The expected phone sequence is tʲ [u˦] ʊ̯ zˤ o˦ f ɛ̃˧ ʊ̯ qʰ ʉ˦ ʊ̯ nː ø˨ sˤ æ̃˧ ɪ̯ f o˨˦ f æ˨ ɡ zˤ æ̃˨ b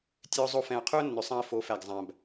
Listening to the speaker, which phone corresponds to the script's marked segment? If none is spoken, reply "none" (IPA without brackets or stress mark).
ø˦